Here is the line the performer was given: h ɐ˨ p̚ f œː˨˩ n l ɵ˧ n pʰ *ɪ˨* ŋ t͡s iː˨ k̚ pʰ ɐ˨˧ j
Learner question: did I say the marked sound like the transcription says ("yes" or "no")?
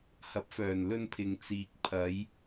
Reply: yes